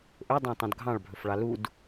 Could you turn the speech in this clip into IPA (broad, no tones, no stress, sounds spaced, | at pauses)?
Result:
ʔ ɵ dˤ ɑ̃ tˤ ũ d ɡʱ ɑ̃ ɭ bʱ ɵ f ɭ ɑ l u d